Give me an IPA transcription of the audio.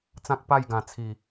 t͡s ã˦ k̚ p a˥˧ j ɡ ã˨˩ t͡sʰ i˨˩

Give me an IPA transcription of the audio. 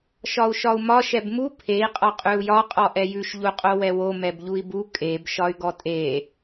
ʃ ɒ u̯ ʃ ɒ u̯ m ɒ ʃ ɛ b m u pʰ e i̯ qʼ ɒ qʼ ʉ u̯ j ɒ qʼ ɔ ʔ ɛ j ʉ ʃ ʎ u qʼ o w ɛ w o m ɛ b ʎ u i̯ b u kʼ e b ʃ ɒ y̯ ɡ ɔ tʼ e

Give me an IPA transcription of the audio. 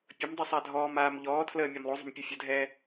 pʲ ə m dˤ u sˤ a dʱ ɔː m aː m ʎ ɔː tʰ l əː mʲ a m lˠ o zˤ ə̤ m pʲ u fʲ ə dʱ ɛː

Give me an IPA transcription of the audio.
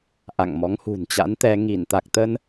ʔ a̰˧˨ ŋ m ɔ˨˦ ŋ h ṳ˨˩ n t͡ɕ a̰˧˥ n t̪ ɛ˧ ŋ i˧˩ n t̪ a˨˩ k̚ t̪ ə˧ n

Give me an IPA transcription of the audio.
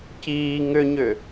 c iː ŋ ʏ ɲ ʏ

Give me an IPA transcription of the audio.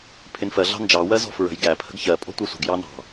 pʰ ɪ n f ɜ ɮ ɑ̤ n d͡ʒ ɑ w ɜ z ɔ̤ f ɹ ə̤ j ɡ æ pʰ ə̤ ɡ ç ɜ pʼ ɔ̤ tʷ ɑ sʷ ə̤ ɡ j ɑ n ɑ̤

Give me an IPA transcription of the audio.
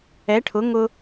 ɛ˩˥ ʈʰ ʊ˩˥ ŋ ʊ˧

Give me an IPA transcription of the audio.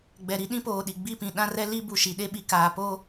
ɡ͡b ɛ˨ ɾ i˦ ɗ ĩ˦ p oː˨ ɗ i˨ ɡ͡b i˦˨ p ĩ˨ ɗ ã˦ r ɛ˦ l i˦ b u˨ ʃ i˨ ɗ e˦ ɓ i˨ k aː˨ p o˦

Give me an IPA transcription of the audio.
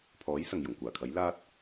pʰ ɔː˨˥ j s ɐ˨ ŋ j ʊ˨˩ ŋ kʷ aː˨˩ kʰ ɐ˨˥ j l aː˧ t̚

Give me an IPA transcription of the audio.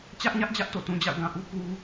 t͡ɕ ä˦ ʔ ɲ ä˦ ʔ d͡ʑ ä˦ ʔ t o̰˦˨ t ũ˨ d͡ʑ a̰˦˨ ʊ̯ ɡ ã˨ ʔ u˦ k u˦

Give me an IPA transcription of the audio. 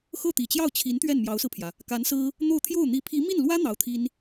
x ɤ˥˩ t̪ i˨˩ t͡ɕ j ɑ˥˩ ʊ̯ t͡ɕʰ i˧˥ n t̪ ɥ ɛ˥˩ n m j ɑ˧˥ ʊ̯ s ɹ̩˧ pʰ j ä˩ | k a˧˥ n s ɹ̩˥ | n̪ o˥˧ ʊ̯ t̪ʰ j o˥˩ ʊ̯ n̪ i˧˥ pʰ i˧˥ m i˥˩ n l w ä˥ n̪ ɑ˧˥ ʊ̯ t̪ʰ i˥ n

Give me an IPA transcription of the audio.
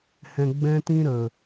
h ɛ̃˧ ɡ͡b ɛ̃˦ t ĩ˦ ɾ ə˨

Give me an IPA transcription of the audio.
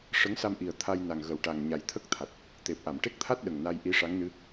ʂ ə˧˥ ŋ s a˧ m ʔ i˨˩ ə̯ t̪ʰ a˧ j n a˨˩ ŋ ɣ ə˨˩ w ʈ a˨˩ ŋ ɲ a˨˩ j t̪ʰ ə˦˥ k̚ t̪ʰ a˨˩ t̚ | t̪ e˨˩ p̚ ʔ a˨˩˨ m ʈ e˦˥ k̚ t̪ʰ a˦˥ t̚ ɗ ə˨˩ ŋ n a˧ j ʔ i˧˥ ʂ a˧˥ ŋ n ɨ˧˥

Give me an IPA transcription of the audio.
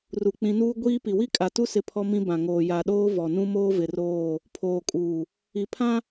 r u˨ k͡p ĩ˨˦ n uː˦ ɡʷ iː˦ p i˨ w i˦ kʼ a˨ t u˦ s ɪ˦ pʰ ɔ˦ m ĩ˦ b ã˨ ŋ oː˨ j a˨ ɗ oː˦ v ɔ˨ n ũ˦ m oː˦ v ɪ˨ r oː˦˨ | pʰ oː˨ kʼ uː˨ | i˨ pʰ ã˦

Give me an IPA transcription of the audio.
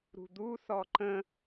ɾ ṳ d̪ u θ ɔ ǃ ə̃

